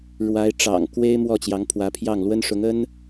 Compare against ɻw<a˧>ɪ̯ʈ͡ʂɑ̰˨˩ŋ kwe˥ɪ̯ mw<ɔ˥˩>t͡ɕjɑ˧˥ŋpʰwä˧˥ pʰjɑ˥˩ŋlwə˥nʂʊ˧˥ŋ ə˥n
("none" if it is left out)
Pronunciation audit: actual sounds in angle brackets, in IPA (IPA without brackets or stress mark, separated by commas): a˧˥, ɔ˥˩